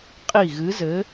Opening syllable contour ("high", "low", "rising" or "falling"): falling